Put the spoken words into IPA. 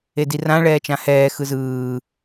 edirã ɭɛːt͡ʃãhɛː xɯzɯː

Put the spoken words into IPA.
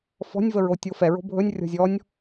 fɔ̤nʲvəɹo tʲofɛɹo̤ bʱɵnʲ rʲɔ̤zʲɔnʲ

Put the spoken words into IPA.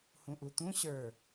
hũʔut̪ũ ɕə˞

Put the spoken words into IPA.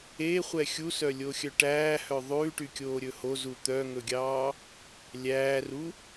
eχʷɛ xʲusœlʲoxʲœ ʈæːhœ ðˤʉːʈykʲoːɾʲɵ hozu t̪œŋɵɡʲɑː | lʲæːru

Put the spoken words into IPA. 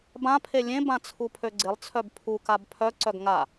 bãpʰe lʲẽbã t͡sʰupʰøɡ͡ǀɪlˠt͡sʰœb pʰukab pʰœ ǀœɡŋa

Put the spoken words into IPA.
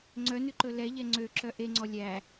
ŋ͡ǀœnʉǃɵ lɛʎɛ ŋ͡ǀøǁœ ʔeŋ͡ǀɔ lʲæ

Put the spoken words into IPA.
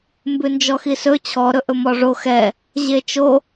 mbʉnd͡ʒɔxisɵ t͡ɕʰɔɾɵʔɵ mɔʐo xɛ | ʑet͡ʃo

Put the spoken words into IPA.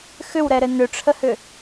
xʏwɾɛɾɘ nʏʈ͡ʂʰəhʏ

